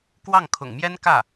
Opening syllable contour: falling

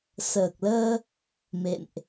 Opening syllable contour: low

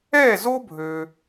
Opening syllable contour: falling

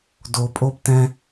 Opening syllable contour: low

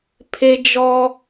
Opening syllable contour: high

